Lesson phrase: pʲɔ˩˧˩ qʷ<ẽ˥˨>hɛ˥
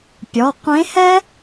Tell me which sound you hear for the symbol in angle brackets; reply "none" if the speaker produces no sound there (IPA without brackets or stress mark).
ẽ˧˥